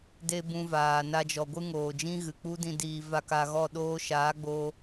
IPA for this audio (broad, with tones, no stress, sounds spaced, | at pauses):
d e˦ b ũ˧ v aː˨ n a˧ d͡ʒ ɔ˨ ɡʷ ɨ˦ ŋ oː˨ d͡ʒ ĩ˦ ɣ ɨ˨ k͡p u˦ d ĩ˦ d iː˧ v a˦ k a˧ ɣ ɔ˦˨ ɗ oː˦ ʃ aː˨˦ ɡ͡b o˧